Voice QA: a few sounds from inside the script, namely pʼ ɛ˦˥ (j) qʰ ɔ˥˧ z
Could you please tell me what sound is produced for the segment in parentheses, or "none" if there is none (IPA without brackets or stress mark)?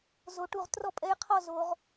j